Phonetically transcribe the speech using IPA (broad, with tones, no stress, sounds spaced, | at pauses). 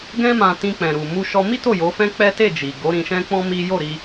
ɡ ɛ̃˦ m ã˧ t ĩ˧ k͡p ɛ̃˨ ɾ u˨ m u˧ ʃ ɔ˧ m i˦ t o˦˨ j o˨˦ f ɛ̃˦ k͡p ɛ˦ t e˦˨ d͡ʒ i˨ ɡ o˨˦ ɾ ĩ˧ ʃ ɛ̃˦ k͡p ɔ̃˦ m i˦ j o˦˨ ɾ i˧